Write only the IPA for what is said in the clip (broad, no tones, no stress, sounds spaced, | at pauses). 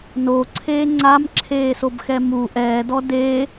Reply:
n o ǀʰ eː ŋ͡ǀ a m ǁʰ eː s o b x ɛ m u ʔ ɛː d ɔ d e